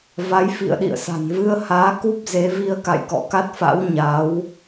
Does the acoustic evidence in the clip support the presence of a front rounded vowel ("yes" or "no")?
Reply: no